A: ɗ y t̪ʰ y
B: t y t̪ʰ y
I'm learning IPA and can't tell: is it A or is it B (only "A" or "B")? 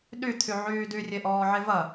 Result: A